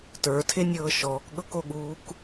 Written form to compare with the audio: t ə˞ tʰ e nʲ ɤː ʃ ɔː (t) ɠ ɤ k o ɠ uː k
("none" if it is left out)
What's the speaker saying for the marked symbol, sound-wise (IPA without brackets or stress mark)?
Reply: k